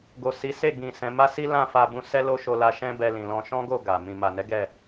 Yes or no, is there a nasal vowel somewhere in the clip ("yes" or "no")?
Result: yes